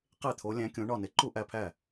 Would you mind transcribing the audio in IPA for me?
qe˥˩t̪ʰo˨˥ lʲæ̃˨˥kʲõ˨˥ɳɒ˥˩ne˨˥ ǃu˥˩ʔæ˥˩pʰæ˥˩

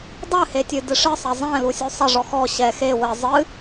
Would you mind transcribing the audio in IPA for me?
dˤɨhetʲɨ dɨʂɨsˤɐ zˤɛ̃ lusʲusˤɐ ʐɔxɔ ɕɛ xe wɘ zˤɨ

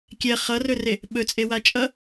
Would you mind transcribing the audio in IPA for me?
kʲɛ χʌrɵre | ɓɵt͡sʼewa t͡ʃʼʌ

